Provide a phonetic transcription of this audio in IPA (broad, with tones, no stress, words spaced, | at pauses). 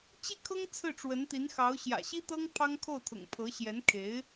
t͡ɕi˥˩kʰɤ˥ŋ t͡sʰɹ̩˥˩ʈ͡ʂwə˧˥nt̪i˧˥nxɑ˧˥ʊ̯ ɕjä̰˨˩ɕi˥t̪ɤ˥ŋ pʰɑ˥ŋkʰo˥˩ʊ̯t̪ʰʊ̰˨˩ŋ pʰɤ˧˥ɕjɛ˧˥nkʰe˧˥ɪ̯